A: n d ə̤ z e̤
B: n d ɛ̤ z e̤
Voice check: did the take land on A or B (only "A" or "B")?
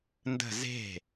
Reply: A